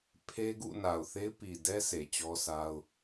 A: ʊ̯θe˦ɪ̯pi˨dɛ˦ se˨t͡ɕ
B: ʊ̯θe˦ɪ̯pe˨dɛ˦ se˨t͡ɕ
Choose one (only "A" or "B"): A